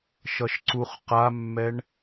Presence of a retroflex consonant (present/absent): present